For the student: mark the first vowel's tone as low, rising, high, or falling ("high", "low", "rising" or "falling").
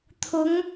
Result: rising